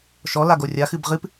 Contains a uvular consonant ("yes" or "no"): yes